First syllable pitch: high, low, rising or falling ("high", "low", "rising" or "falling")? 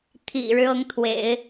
low